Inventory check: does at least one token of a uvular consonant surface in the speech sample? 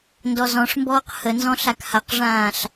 yes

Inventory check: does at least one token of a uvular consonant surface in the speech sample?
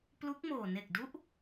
no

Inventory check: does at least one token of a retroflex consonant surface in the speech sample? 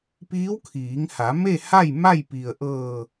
no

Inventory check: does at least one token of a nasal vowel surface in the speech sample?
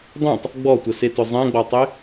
yes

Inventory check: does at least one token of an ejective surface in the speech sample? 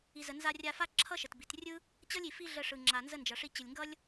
no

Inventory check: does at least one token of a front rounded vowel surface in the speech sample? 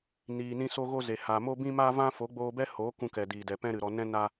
no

